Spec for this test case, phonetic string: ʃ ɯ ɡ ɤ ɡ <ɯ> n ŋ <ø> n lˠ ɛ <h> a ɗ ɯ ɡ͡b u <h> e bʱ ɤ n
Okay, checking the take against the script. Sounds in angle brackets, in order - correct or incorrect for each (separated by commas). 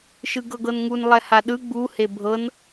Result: incorrect, incorrect, correct, correct